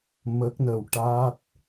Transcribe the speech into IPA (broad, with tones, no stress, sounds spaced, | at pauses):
m ə˦˥ k̚ n ə˧ w ʈ a˦˥ t̚